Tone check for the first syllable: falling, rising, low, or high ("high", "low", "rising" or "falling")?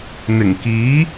low